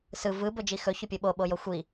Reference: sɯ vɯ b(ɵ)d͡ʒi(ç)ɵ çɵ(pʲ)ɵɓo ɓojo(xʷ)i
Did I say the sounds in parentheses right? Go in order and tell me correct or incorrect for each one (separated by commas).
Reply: correct, incorrect, correct, correct